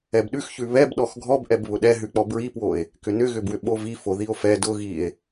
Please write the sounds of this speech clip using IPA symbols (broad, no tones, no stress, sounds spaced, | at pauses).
ɛ b ɗ ʉ x ç ʉ β ɛ b ɗ ɔ x ɡʱ ɔ b ʔ ɛ b β ʊ ɗ ɛ ɦ ʉ k͡p ɔ b ɹ i p w o e̯ | k ʏ n ʏ ɣ ʏ b w ʏ ɓ o v i f o ð i o̯ f ɛ d ʊ ɣ i e̯